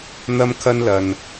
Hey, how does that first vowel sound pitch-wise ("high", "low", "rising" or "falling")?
high